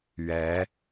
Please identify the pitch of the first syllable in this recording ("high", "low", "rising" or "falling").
rising